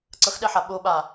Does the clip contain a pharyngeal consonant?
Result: yes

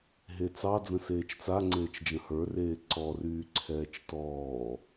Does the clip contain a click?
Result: yes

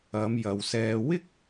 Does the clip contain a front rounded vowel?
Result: no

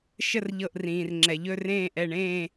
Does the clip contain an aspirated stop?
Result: no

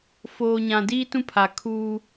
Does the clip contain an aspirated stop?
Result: yes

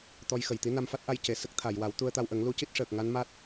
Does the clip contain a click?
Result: no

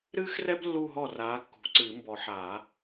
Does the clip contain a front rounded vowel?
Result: no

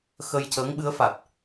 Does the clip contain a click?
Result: no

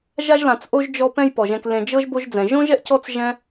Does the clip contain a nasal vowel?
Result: yes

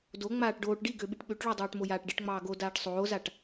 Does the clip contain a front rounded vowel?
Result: yes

